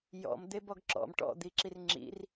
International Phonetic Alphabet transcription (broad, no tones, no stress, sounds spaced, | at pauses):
j ɔ̰ m d̪ e b ɔ ɡ ǁ ɔ̰ m ʈ ɔ̰ d̪ i ǁ i r ŋ͡ǁ ḭ r